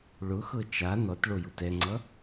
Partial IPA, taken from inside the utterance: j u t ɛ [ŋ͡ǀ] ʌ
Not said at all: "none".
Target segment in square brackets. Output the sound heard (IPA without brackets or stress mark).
ŋ͡ǀ